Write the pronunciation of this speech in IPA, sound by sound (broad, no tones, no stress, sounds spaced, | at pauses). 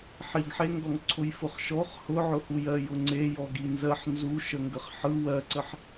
ħ i ɡ ħ e ŋ ɡ ɔ ŋ ǀʰ ʊ j f ʊ χ ʃ ɔ χ h ʊ ʕ ʊ h u j ɜ j ʊ ŋ͡ǀ e j ɔ ɡ i n z ɜ ħ n z u ʃ ə ŋ ɡ ə χ ħ ɯ w ɜ ǀ ə ħ